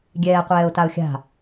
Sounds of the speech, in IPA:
ɡʲ ɛː qʷ ɛː ʊ̯ t a ʊ̯ xʲ a̤

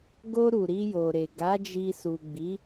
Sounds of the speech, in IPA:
ɡ o˧ ɾ u˨ ɾ i˧ j o˨ ɾ e˨ ɡ a˨˦ d͡ʒ i˧ s u˨ ɡ͡b i˨˦

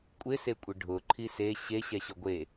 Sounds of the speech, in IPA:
kʷʼ ɪ s e kʷʼ ɪ ɖʱ ʊ ǃʰ i s e ɕ e ɕ ɛ ɕ ʊ ɡʷ e

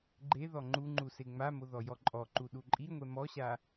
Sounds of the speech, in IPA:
ɡ͡ǃ e ð ɔ ŋ͡ǃ u ŋ͡ǃ u s e ŋ͡m a m o ð ɔ j ɔ ǃʼ ɔ ǃ u ɗ u ǃʼ i ŋʷ ɛ m ɔ ɕ a

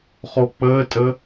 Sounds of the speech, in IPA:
χ o k͡p əː tʼ ə

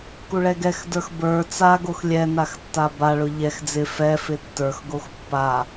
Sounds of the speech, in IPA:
k u ɭ ɛ ɡ ɛ x d ə˞ x b ə˞ t͡s a ɡ o x lʲ ɛ n a x tː a b a ɭ ʊ ʎ ɛ x d͡z ɪ f ɛ f ɪ tː ə˞ x ɡ o x pː a

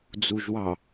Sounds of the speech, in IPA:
d͡z u ʒ w ɑ

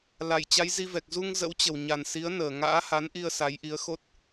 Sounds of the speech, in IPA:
l a˧˩ j t͡ɕ a˨˦ j z i˧ v ɛ˨˩ k̚ z u˧ ŋ z ə̰˧˥ w t͡ɕ ə˨˩ w ɲ a˨˩ n s i˨˦ ə̯ n əː˨˩ ŋ a̰ː˧˥ h a˨˦ n ʔ i˧ ə̯ s a˨˦ j ʔ i˨˦ ə̯ x o˦˥ t̚

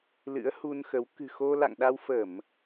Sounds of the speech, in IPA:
l ɨ̰˧˥ ə̯ h u˧ n x ə˨˦ w k ɨ̤˨˩ x o˧ l a̰˧˨ ŋ ɗ a˧ w f ə˧˩˨ m

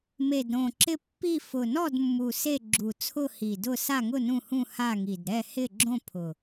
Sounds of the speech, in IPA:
m e˨˩ d ɾ õ˨˩ ǁ ɪ˦˨ pː i˦˨ f ʊ˨˩ n ɔ˦˨ d mː u˨˩ s e˦˨ ɡ͡ǁ u˨˩ t͡sʰ ʊ˦˨ h i˨˩ d ʊ˦˨ s a˦˨ ŋ ʊ˦˨ n ũ˦˨ h ũ˦˨ h a˦˨ ŋ i˨˩ d ɾ ɛ˦˨ h ɪ˦˨ ɡ͡ǁ õ˦˨ pʰ ʊ˨˩

